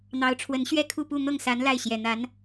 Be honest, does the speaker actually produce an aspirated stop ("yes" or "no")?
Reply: yes